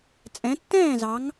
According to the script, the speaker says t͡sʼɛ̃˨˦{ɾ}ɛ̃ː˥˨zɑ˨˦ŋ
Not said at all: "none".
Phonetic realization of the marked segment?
tː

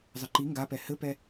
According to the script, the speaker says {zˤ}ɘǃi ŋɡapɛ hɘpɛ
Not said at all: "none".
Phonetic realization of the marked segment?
zˤ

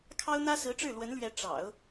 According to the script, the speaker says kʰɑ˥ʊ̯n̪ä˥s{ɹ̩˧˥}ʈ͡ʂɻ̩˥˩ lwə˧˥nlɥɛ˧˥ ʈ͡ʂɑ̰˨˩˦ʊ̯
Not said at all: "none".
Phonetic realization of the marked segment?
ɹ̩˧˥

